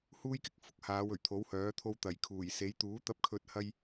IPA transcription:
h uː˥ j k ɪ˥ k̚ f ʊ˥ k̚ h aː˨˧ w ɵ˨˩ ɥ t̪ʰ o˨˥ w h œː˨˥ t̪ʰ o˧ w t̪ ɐ˨˩ j kʰ uː˨˩ j s e˨˧ j t̪ uː˨˥ t̪ ɐ˧ p̚ kʰ ɵ˧ t̚ h ɐ˧ j

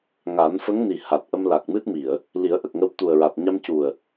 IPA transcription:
ŋ a˨˩˦ n f ə˧˥ ŋ n i˨˩ h a˨˩ t̚ ʔ ə˧ m l a˨˩ k̚ m ɨ˦˥ t̚ m i˨˩˨ ə̯ | l i˨˩˦ ə̯ ʔ ə˨˩ k̚ ŋ ə˧ w t̪ u˨˩ ə̯ ɹ a˨˩ t̚ ɲ a˧ m c u˨˩ ə̯

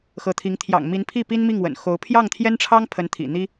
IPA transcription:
x ɤ˧˥ t̪ʰ i˧˥ ŋ t̪ʰ j ɑ̰˨˩ ŋ m i˧˥ n pʰ i˥˩ p i˥ n m i˥˩ ŋ w ə̰˨˩ n x o˧˥ ʊ̯ pʰ j ɑ˥˩ ŋ t̪ʰ j ɛ˥ n ʈ͡ʂʰ ɑ˥ ŋ pʰ ə˧˥ n t̪ʰ ḭ˨˩ n̪ i˥

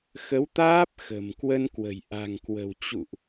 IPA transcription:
x ə˨˦ w t̪ aː˦˥ p̚ x ə̤˨˩ m k w ə˧ n k w ə̤˨˩ j ʔ a̤˨˩ ŋ k w ə̤˨˩ w t͡ɕ ṵ˧˨ ʔ

